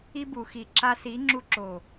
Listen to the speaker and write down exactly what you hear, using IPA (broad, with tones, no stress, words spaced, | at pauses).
i˧bu˨xi˨ ǁa˧si˨˦ ŋ͡ǁu˧ǁo˨